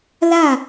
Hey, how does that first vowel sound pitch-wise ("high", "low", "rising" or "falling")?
falling